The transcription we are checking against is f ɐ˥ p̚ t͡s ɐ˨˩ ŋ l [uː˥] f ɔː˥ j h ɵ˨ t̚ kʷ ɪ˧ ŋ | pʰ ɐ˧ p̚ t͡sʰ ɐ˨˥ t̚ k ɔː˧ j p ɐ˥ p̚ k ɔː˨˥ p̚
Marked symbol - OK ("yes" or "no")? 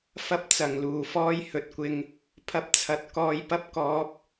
no